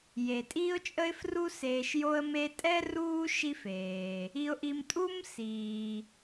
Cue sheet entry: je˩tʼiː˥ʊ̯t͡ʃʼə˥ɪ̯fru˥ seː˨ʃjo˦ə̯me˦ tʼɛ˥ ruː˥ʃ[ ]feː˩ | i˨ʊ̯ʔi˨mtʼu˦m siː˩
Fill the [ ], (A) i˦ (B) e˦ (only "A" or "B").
A